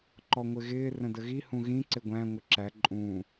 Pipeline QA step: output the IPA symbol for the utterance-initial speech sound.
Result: ǃ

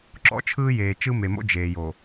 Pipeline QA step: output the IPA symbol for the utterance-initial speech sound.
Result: ǁ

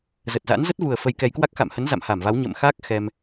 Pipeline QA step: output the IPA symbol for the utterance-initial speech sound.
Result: z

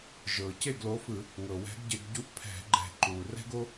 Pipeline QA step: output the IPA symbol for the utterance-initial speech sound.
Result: ʒ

